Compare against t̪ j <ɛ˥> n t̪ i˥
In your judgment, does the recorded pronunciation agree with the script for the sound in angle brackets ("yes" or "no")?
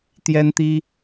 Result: yes